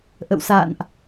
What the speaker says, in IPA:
ʔ ə̰˧˨ w s a̰ː˧˨ n ʔ

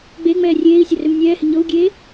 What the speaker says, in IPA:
ɡ͡b e ŋ͡m ɛː rʲ eː i̯ sʲ ɐ r ø m nʲ ɛː h ɪ ɲ ɤ u̯ ɡʲ eː

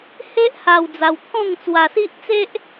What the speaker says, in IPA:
h e˦ ʔ h a˧ w d͡z a˧ w t̪ʰ ɔ̃˥˧ ŋ t͡s w a˧ s i˦ ʔ t͡s e˦ ʔ

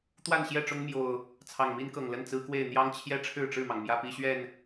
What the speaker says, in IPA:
t̪ w a˥˨ n ɕ j ɛ˥˨ ʈ͡ʂ ʊ˦ ŋ m j o˨˩ ʊ̯ | t͡sʰ ɑ˨˩ ŋ m i˦ n k ɤ˨˩ ŋ l ə˥˨ n t͡s ɹ̩˦ k w e˥˨ ɪ̯ n̪ j ɑ˦ ŋ t͡ɕʰ j ɛ˦ ʈ͡ʂʰ ɻ̩˥˨ ʈ͡ʂ ɻ̩˥˨ m ɑ˩ ŋ m j ä˦ p i˦ ɕ ɥ ɛ˥˨ n

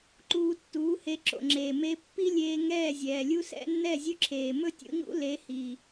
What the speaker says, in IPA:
ǃ uː˧ tː uː˨˦ h e˧ ǁ o̰˨ ŋ͡ǁ eː˨ m e˧ pː i˦ lʲ eː˧ ŋ ɛː˦˨ zʲ ɛː˨ lʲ u˦ s ɛ̰˦ nː ɛ˦˨ zʲ ɵ˦ ǁʰ eː˨ m ɵ˦ tʲ ṵ˧ ɲ ṵ˦ l e˨˦ h i˨

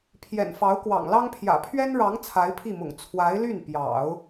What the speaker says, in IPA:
pʰ j ɛ̰˨˩ n f ɑ˧˥ ʊ̯ k w ɑ̰˨˩ ŋ l ɑ˥ ŋ pʰ j ä̰˨˩ pʰ ɥ ɛ˥ n ɻ ɑ˧˥ ŋ t͡sʰ a˧˥ ɪ̯ pʰ i˥˩ m ʊ̰˨˩ ŋ t͡sʰ w a˧˥ ɪ̯ l y˥˩ n p j ɑ̰˨˩˦ ʊ̯

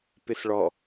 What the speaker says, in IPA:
p ɪ s ɭ ɔ

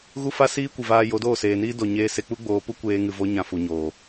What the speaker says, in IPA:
ɣ u˦ f a˦ s iː˦ kʷ ɨ˨ v aː˧ j o˨˦ d oː˦˨ s eː˨ n iː˦ d o˨ ɲ eː˧ s e˧ k͡p u˦ ɡ͡b oː˧ p u˦ kʷ eː˧ ŋ ɨ˨ v o˦ ɲ ã˧ f u˨ ɲ oː˨

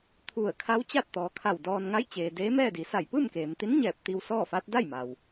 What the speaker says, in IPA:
t̪ʰ u˧˩ ə̯ kʰ a˧˥ w t͡ɕ a˥˨ t̚ t̪ ɔː˩ kʰ a˧˩ w d ɔː˧ n ŋ a˧˥ j t͡ɕ eː˩ d eː˧˥ m ɛː˥˨ d i˩˧ s a˧˩ j p ɯː˥˨ m k eː˩ m t̪ i˧˥ n ɲ ɛː˧˩ p̚ t̪ i˧ w s ɔː˥˨ f a˧˥ t̚ d a˥˨ j m a˩ w

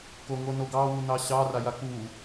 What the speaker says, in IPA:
k o ŋ o n o ɡ ɑ w u n ɑ ɕ ɑ r a j a k u

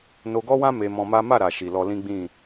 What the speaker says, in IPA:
n o˧ ɡ ɔ˦ w ã˦ m e˧ m ɔ̃˧ m a˦ m a˦˨ ɾ a˨ ʃ i˨ l ɔ˧ l ĩ˦ ɡ͡b ĩ˦˨

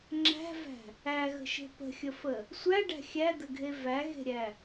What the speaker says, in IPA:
ŋ͡ǁ æ̤ v æ̤ | æ ɣ ə̤ ʃ e̤ p ə̤ xʲ ə f ə | sʷ æ ɖ æ̤ xʲ æ d̪ ə ɡʱ e v æ ɣ e̤ ɾʲ æ

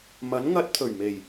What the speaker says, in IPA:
m ɐ˨˥ n ŋ ɐ˧ t̚ t̪ʰ ɵ˨˩ ɥ m e˨˩ j

